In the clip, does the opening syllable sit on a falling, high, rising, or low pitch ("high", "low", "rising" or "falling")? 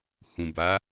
low